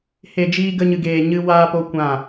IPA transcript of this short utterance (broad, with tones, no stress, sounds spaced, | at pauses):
h e˨ d͡ʒ iː˧ ɡ ə˧ ɲ ɨ˨ ɡ eː˨ ɲ ɨ˧ w aː˧ p o˧ kʷ ã˦˨